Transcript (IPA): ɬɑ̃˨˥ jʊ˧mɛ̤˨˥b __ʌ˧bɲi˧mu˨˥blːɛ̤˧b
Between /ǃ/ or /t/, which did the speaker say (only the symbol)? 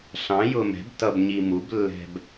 t